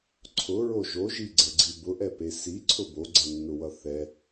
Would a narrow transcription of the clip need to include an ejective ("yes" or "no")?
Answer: no